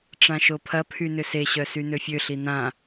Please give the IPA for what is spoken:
ʈ͡ʂãʃopʰɐpʰy nʏseɕœ syn̪øfʲøɬi n̪ã

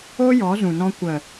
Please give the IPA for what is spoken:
o˦jɔ˨˦zũ˨nɔ̃˧ kʷə˨

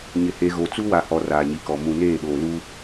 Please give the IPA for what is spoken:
ɲɪ˨he˨ɣo˨ t͡su˦wa˨hɔ˨ raː˨ɲi˨kɔ˨ mũ˨neː˦˨ɗoː˨luː˦

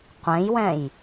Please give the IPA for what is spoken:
qʷẽjwɛ̃j

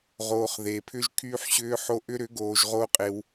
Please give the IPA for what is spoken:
ʁoː˨χ ðe˨pʰʏ˦ʒ kʰyː˧ħɕʏː˧ħo˧ ʔʏ˦ɾʏ˨˦ɡoː˨ʒ ʁo˦qʼe˧w

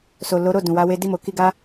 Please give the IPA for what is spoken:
so˨lo˨˦ɾo˦˨ dũ˨wa˨˦we˧ di˧mo˨ki˧ɡa˦

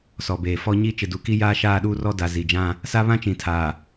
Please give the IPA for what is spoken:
sɔ˨beː˨fɔ˦ ɲi˦ t͡ʃɪ˨du˨ki˦ jaː˦ʃaː˦˨ɗuː˦rɔ˦ da˨ zi˨d͡ʒã˦ | sa˦βã˦t͡ʃĩ˨ tʰaː˨

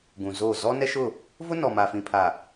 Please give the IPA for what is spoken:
ɡũ˨zoː˦˨ zɔ˦nɛ˦ʃʊ˦˨ | vʊ˦nɔ˨ma˨ fĩ˨ pʰa˨

